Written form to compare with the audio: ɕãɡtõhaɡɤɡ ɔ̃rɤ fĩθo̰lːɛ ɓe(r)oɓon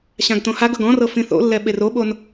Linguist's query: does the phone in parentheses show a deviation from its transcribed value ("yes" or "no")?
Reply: no